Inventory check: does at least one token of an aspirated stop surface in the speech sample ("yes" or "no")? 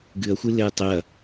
no